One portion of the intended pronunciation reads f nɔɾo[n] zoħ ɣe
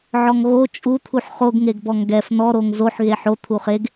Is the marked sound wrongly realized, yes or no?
yes